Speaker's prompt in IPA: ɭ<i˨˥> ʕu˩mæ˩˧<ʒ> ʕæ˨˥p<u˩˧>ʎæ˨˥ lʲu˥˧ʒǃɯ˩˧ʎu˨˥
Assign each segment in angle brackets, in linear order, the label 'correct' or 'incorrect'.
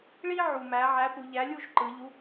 incorrect, incorrect, correct

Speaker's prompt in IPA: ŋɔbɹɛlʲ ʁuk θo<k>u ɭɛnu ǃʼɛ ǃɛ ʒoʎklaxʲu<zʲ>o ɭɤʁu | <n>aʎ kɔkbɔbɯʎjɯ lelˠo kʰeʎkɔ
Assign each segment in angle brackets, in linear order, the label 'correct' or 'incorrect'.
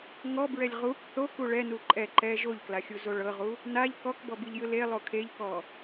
correct, incorrect, correct

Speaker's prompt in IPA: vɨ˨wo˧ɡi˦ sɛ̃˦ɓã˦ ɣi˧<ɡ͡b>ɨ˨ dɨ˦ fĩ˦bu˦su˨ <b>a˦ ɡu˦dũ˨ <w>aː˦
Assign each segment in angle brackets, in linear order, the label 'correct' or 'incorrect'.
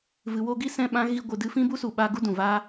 incorrect, incorrect, incorrect

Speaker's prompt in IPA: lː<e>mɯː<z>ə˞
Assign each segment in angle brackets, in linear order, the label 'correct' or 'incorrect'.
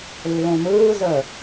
incorrect, correct

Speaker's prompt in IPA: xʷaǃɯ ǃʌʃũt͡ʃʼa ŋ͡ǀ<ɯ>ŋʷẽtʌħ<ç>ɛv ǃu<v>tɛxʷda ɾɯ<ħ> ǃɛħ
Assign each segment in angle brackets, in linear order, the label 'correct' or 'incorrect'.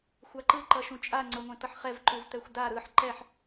incorrect, incorrect, correct, correct

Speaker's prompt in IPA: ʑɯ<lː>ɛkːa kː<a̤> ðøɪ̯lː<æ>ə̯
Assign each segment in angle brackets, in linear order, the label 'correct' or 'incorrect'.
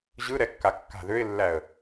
incorrect, correct, correct

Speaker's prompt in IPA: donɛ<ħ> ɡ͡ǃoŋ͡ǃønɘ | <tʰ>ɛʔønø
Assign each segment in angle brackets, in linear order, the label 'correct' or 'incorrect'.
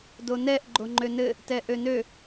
incorrect, incorrect

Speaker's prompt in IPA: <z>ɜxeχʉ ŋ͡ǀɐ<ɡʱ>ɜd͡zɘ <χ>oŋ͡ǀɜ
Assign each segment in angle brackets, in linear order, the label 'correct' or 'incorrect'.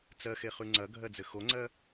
incorrect, correct, incorrect

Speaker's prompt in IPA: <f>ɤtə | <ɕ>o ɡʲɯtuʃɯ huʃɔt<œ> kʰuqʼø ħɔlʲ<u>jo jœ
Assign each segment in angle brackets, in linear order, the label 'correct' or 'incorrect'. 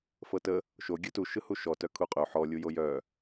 correct, incorrect, correct, correct

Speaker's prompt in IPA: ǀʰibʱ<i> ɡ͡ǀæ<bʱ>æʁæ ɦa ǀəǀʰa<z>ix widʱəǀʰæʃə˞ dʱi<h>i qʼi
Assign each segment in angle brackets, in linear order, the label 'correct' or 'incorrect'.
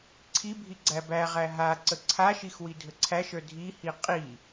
correct, incorrect, incorrect, correct

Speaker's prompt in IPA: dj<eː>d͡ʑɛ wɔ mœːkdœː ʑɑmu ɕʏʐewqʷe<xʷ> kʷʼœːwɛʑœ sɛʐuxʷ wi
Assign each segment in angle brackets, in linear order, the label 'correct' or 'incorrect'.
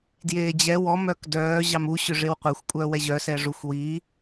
correct, correct

